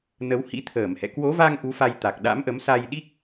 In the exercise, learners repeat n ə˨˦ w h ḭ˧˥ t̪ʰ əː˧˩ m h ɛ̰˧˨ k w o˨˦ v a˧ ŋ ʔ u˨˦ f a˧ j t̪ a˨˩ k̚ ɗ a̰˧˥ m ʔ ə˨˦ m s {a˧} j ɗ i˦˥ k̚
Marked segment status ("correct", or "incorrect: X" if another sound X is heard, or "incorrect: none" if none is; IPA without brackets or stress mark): correct